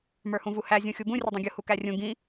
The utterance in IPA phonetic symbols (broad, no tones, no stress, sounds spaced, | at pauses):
m ə˞ h ũ v u h æ zʲ ũ xʲ u b ũ rʲ ʊ dˤ ũ ɡʲ ʊ h u k æ rʲ ũ ɡ ĩ